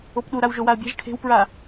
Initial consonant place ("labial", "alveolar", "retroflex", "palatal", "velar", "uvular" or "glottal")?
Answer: labial